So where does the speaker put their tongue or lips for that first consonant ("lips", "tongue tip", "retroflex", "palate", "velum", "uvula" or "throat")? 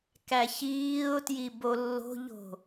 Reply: velum